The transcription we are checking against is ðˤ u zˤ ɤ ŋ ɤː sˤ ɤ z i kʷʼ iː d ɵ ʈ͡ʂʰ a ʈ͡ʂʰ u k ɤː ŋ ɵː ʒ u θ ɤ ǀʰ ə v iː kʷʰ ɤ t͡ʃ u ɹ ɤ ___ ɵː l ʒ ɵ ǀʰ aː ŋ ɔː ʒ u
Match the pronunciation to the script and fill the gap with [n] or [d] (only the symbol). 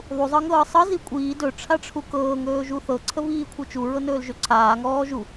n